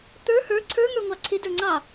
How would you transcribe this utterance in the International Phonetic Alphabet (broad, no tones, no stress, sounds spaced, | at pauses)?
t̪ ə˞ h ə˞ ǀʰ ə˞ ŋ ə˞ ŋʷ ɑ ǀʰ ɪ d ə˞ ŋ͡ǀ ɑ